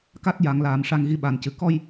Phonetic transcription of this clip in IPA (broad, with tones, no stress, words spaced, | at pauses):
ka˦˥t̚ja˨˩˨ŋlaː˨˩˨m ʂa˧ŋɣi˧˥ɓa˨˩ncɨ˨˩ kɔ˧j